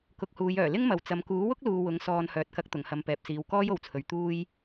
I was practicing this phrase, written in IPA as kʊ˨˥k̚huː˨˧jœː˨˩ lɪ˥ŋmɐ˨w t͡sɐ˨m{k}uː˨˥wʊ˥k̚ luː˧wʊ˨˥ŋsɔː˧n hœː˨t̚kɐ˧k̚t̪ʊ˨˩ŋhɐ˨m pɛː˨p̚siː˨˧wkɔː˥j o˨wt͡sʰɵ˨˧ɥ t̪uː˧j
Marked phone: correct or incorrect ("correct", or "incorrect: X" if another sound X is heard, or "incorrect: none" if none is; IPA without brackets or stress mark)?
correct